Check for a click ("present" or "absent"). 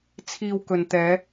absent